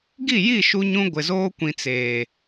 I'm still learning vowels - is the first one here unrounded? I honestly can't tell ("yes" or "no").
yes